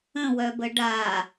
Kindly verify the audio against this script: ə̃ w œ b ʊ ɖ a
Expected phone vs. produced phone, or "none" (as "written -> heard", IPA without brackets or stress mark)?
ʊ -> ə